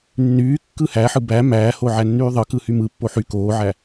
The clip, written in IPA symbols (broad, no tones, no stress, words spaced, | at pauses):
nːyː kːɯhæħɯ bæ mæːho ʕænːyːðˤɯ kɯhymɯ pːoħy koːʕæ